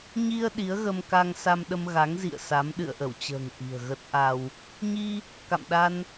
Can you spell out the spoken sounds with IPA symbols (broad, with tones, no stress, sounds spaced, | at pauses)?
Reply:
ɲ i˧ ə̯ ɗ i˨˦ ə̯ ɣ ə˧ m k a˧ ŋ s a˧ m ɗ ə˧ m ɣ a˨˦ ŋ z ḭ˧˨ ə̯ s a˨˦ m ɗ ɨ̰˧˨ ə̯ ʔ ə˧˩ w t͡ɕ ə̤ː˨˩ ŋ ʔ i̤˨˩ ə̯ ɣ ə˦˥ t̚ ʔ a˧ w | ɲ i˧ | k a̰˧˨ m ɗ a˧ n